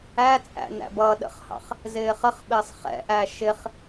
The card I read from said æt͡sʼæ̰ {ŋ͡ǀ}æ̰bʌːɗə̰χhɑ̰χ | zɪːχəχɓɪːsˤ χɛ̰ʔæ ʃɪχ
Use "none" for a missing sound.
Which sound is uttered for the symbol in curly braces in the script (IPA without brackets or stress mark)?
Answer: n